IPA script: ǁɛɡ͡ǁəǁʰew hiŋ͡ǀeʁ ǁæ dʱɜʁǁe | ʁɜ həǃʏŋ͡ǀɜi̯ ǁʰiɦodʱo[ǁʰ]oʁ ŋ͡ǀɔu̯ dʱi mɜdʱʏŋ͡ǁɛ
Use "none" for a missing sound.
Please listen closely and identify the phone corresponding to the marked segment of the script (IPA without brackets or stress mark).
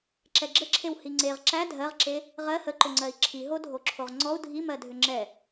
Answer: ǁʰ